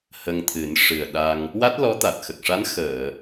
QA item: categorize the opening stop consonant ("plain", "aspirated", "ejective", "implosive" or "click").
aspirated